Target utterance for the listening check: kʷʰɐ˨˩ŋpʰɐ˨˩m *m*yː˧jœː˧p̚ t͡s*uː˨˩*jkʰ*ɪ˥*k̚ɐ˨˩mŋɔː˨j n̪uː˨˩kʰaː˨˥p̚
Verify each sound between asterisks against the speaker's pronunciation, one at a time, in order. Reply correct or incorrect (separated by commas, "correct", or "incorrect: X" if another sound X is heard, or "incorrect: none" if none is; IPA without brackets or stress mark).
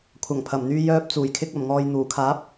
incorrect: n̪, correct, incorrect: ɪ˧